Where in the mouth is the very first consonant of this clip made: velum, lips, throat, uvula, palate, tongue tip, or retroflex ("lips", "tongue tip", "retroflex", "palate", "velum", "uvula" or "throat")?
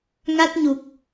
velum